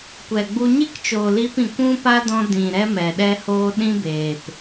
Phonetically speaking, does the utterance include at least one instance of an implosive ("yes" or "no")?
yes